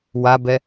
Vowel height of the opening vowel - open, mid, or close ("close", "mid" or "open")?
open